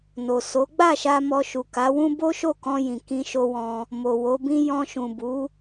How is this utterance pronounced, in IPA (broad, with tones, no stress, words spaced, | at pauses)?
no˨so˨˦ ɡ͡ba˦˨ʃa˧ mɔ˧ʃu˨ka˨˦wũ˦ bo˦ʃo˦˨kɔ̃˧jĩ˨ kĩ˧ʃo˧wɔ̃˧ | mo˨wo˨˦bĩ˦ jɔ̃˧ʃũ˨bu˨˦